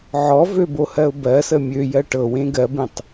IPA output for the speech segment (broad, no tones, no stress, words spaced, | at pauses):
ʕɔ vøbohɜʊ̯ bɜsə mʲøjɜ ʈɤwẽ ɡɜbẽtˤ